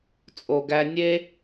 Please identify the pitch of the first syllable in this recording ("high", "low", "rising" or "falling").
low